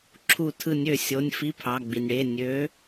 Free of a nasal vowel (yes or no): yes